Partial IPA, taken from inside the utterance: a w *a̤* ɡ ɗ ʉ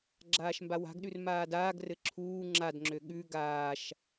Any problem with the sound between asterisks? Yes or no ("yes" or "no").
no